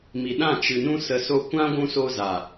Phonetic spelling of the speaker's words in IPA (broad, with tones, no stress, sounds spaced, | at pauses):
m i˨ ɗ ã˦˨ t͡ʃ ɨ˨ n ũ˧ s ə˨ s o˧ kʷ ã˦ ɡʷ ũ˧ s o˧ z a˨